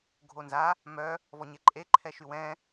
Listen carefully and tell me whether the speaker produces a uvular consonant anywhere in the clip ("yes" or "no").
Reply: no